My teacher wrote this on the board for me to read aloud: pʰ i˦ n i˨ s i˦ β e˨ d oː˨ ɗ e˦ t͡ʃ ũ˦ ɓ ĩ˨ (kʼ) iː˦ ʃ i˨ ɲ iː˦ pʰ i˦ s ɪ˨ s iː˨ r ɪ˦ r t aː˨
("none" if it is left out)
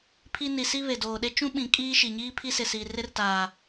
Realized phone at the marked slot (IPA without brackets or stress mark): kʼ